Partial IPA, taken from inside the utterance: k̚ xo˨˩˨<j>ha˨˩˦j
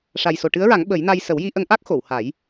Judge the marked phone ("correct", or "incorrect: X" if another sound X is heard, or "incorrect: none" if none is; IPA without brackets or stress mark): incorrect: w